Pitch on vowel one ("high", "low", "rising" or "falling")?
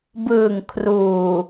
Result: low